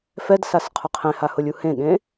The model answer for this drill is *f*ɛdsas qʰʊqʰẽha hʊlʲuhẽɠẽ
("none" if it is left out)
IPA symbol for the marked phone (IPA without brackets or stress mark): f